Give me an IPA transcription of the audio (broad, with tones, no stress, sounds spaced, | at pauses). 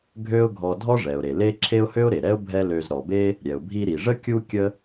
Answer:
ɡʱ ø˥ ʊ̯ ɡʱ ɔ˧ dʱ ɔ˥ ʐ ɛ˩ ʊ̯ ɾ e˩ l e˥ ǁʰ e˥ ʊ̯ h ø˥ ʊ̯ ɾ e˩ ɾ ɛ˥ ʊ̯ bʱ ɛ˥ l ø˧ z ɾ ɔ˩ b e˥ | ɾʲ ɛ˩ ʊ̯ bʱ i˧ ɾ i˩ ʐ ə˥ kʲ u˥ kʲ ə˥